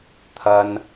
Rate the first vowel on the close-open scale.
open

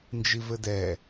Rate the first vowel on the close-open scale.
close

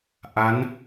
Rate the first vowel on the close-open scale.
open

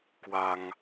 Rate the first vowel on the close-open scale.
open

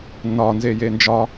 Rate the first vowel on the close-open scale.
open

